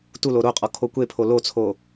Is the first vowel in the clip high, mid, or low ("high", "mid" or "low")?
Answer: high